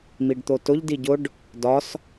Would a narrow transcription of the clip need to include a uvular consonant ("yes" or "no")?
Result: no